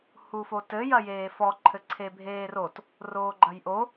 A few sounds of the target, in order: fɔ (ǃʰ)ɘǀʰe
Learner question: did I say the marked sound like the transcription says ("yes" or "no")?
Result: yes